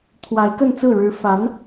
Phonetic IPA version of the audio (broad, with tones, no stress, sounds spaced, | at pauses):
t̪ʰ w a˧˥ ɪ̯ k ə˥˧ n t͡s ɹ̩˥˩ ɻ ɻ̩˧˥ f a˧˥ n